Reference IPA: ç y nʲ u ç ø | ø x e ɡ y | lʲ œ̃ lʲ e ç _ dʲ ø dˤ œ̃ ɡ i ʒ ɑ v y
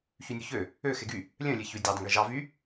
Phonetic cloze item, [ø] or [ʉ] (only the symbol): ʉ